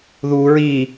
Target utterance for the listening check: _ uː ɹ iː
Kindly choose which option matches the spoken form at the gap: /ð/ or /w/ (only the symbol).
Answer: ð